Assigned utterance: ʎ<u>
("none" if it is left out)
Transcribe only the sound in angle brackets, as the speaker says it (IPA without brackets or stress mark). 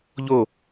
o